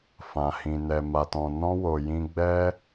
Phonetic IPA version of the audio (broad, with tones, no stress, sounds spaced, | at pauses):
f ã˨ h ĩ˨ n ɛ˨ m a˨ t ɔ̃˨ n ɔ̃˧ w o˨ j ĩ˧ ɡ͡b ɛ˧